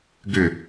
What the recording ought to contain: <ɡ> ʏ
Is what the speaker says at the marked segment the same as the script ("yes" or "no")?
yes